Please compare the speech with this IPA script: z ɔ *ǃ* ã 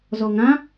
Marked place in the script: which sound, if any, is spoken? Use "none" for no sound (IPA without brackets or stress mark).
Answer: ŋ